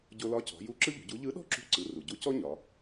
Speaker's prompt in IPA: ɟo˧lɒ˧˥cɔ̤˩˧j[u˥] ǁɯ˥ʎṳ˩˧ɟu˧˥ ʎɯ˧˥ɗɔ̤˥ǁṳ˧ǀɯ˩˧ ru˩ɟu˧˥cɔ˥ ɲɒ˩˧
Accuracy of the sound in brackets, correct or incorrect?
incorrect